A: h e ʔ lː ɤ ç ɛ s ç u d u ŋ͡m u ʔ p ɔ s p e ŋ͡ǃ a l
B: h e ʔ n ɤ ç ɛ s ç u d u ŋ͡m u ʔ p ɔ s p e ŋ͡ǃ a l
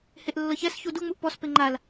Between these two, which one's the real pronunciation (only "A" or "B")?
A